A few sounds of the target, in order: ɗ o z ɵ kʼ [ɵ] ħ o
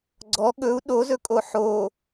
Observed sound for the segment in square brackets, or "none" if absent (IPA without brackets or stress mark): o